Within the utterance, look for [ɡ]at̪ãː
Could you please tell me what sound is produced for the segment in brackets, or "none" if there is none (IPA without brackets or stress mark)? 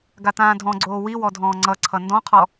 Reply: ɡ